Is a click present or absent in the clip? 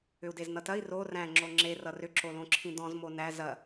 present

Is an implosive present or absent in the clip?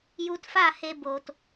absent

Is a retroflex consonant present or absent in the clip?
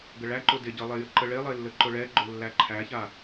present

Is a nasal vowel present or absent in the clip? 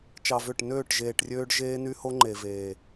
absent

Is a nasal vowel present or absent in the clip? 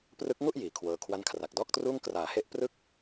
absent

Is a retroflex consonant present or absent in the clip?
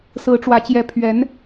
present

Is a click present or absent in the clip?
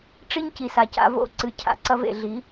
present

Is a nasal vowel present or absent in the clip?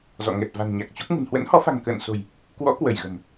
absent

